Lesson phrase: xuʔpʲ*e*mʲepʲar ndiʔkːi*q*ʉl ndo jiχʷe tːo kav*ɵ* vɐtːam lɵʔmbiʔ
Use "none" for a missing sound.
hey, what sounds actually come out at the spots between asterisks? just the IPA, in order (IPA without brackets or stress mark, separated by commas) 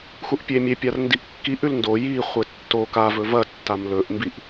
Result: e, ʔ, ɵ